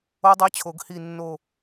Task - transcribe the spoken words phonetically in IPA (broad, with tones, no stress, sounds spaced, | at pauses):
o˦˥ dˤ e˧˥˧ t͡ɕʰ o˨˩˦ ɡ h i˦˨ nː o˦˨